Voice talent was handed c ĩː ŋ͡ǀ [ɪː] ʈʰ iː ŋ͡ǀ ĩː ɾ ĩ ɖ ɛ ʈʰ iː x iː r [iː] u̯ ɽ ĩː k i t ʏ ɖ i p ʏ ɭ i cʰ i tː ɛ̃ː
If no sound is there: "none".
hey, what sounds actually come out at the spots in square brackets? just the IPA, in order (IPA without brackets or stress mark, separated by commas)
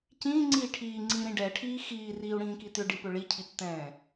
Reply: iː, iː